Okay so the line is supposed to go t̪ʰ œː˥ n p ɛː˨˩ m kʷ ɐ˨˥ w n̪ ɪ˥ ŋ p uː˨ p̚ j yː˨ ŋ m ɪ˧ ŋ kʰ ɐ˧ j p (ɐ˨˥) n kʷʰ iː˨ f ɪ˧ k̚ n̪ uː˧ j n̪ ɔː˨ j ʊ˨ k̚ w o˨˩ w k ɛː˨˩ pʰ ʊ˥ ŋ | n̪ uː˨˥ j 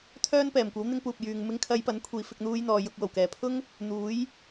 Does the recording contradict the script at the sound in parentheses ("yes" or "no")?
no